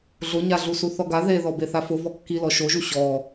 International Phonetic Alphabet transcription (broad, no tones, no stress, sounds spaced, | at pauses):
ɮ ʊ ɲ a ɮ u s u θ ɔ ɡ a ð e ð ɔ b e θ a f ʊ v ɔ kː i l ɔ ʃ o ʒ u ɕ ɔ